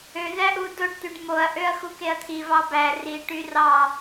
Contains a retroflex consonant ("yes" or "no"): yes